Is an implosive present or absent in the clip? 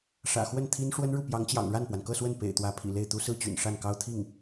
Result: absent